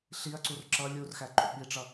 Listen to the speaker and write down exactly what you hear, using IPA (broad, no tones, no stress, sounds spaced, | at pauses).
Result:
ɬ i ɐ̯ ǀ u r ǁ ʌ lʲ u r x æ ǃ ṵ ɓ i ʈ͡ʂ ʌ